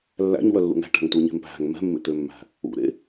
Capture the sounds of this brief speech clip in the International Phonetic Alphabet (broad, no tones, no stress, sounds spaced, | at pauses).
lː æ̰ ɲ w œ lː ṵ ŋ æ̤ ʈ æ̤ ŋ t u ɲ e̤ m p æ̤ ŋ m ɛ̤ mː ḛ t̪ ø mː æ̤ | ṵ ɾ ḛ